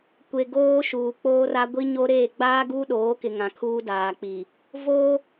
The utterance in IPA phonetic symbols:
kʷe˨ ɡoː˦ʃuː˨k͡poː˦ra˦ ɡʷi˦ɲo˦ɾeː˦˨ ɡ͡baː˦ɡuː˦ɗoː˨˦kɪ˨ ŋã˨kʰuː˦daː˨k͡pi˨ | vo˦

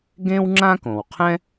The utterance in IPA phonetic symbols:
ɡẽ˥wŋ͡ǁã˥kõ˩w qʰɛ̃˥

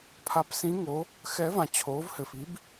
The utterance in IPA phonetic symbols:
pʰa˨˥psĩ˨˥ ŋo˨˥ | xɛ˨˥vã˨ t͡ɕʰoː˨˥vhɘ˨fi˨˥b

